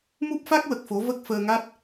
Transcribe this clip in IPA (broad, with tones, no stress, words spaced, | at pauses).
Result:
mu˦˥p̚fa˦˥k̚wə˨˩k̚fo˨˩˦ və˦˥k̚fəː˧ŋa˦˥t̚